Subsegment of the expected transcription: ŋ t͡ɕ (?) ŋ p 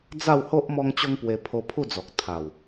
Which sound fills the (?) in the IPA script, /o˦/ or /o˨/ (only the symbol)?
o˦